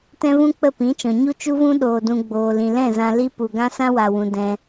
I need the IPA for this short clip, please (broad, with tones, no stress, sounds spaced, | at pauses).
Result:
t ɛ̃˦ v ũ˦ k͡p ə˦˨ p ĩ˨˦ t͡ʃ ɔ̃˨ ɲ u˦ t͡ʃ u˦ v ũ˦ ɗ oː˧ d ũ˧ ɡ͡b oː˨ l ĩ˨ l ɛ̃˦˨ z ã˧ l i˦ p u˨ ɡ ã˦ s ã˦ w a˨ w ũ˨ d ɛ̃˧